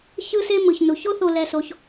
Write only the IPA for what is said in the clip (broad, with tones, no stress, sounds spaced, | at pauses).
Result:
ç ɯ˦ s e˦ m ɯ˨ ç n u˨ ç o˦ θ o˧ l ɛ˧ s o˧ ç